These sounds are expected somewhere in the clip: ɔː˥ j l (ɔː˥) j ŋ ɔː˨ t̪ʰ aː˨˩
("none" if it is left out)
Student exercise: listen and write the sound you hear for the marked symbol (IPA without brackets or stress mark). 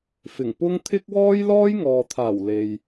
ɔː˥